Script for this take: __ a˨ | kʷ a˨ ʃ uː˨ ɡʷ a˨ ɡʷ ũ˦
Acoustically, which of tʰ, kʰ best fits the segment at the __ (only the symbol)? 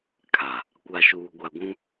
kʰ